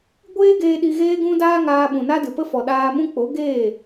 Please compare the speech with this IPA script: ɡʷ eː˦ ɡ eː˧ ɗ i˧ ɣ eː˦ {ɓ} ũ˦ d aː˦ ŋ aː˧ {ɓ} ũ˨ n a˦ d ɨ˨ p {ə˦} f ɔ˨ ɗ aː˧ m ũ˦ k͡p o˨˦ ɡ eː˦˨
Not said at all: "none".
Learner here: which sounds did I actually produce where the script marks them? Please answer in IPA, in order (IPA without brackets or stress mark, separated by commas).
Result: ɡ, ɓ, ə˦